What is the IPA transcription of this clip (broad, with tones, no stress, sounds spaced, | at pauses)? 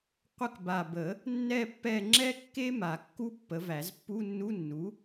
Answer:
qʷ ə˦˨ k b a˨˩ b ə˨˩˦ | nː ɛ˦˨ pː ɛ˦˨ ŋ͡ǁ ɛ˥ kː e˥ m a˨˩˦ kː u˥ pː ə˩˥ v æ˨˩˦ z pː u˧˥˧ nː u˧˥˧ nː u˩˥